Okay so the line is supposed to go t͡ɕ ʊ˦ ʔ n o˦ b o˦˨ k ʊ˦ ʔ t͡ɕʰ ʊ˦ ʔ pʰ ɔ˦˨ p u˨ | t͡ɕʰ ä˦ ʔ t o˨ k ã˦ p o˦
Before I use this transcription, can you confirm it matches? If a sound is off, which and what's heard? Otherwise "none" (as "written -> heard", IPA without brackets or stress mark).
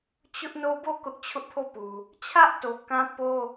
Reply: ɔ˦˨ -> o˦˨